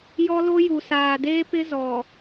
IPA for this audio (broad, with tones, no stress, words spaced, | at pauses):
jɔ˦lo˦ ju˨saː˨deː˦pɪ˦ zɔ˨